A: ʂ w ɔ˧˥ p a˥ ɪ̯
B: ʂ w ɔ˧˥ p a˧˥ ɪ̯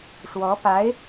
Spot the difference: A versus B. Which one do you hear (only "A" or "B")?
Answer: B